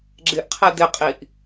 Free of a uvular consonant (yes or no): no